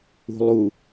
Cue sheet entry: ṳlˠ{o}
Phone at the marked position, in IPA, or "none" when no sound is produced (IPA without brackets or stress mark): u